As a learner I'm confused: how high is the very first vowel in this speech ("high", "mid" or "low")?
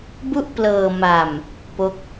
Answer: high